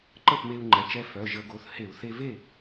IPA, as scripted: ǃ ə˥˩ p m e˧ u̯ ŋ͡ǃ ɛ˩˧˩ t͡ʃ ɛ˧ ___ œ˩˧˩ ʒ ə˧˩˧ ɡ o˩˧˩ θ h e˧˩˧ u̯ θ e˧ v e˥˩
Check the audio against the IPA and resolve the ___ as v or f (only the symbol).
f